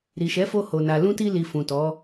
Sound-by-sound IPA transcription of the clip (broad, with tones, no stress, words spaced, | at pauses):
ɾi˨ʃɛ˨˦fo˧ho˨ na˨lũ˧ti˧li˨ fũ˨tɔ˨˦